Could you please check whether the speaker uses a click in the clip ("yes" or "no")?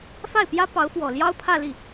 no